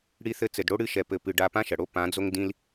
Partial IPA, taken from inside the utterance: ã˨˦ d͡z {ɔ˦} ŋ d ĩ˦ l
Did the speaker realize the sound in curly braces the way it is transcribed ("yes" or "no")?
no